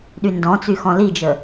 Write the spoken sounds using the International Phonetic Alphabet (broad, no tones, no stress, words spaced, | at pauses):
ɗyndɔ̃t͡sy xɔ̃lid͡ʒə